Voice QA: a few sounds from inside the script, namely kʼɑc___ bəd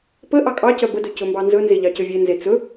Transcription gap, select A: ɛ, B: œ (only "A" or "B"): B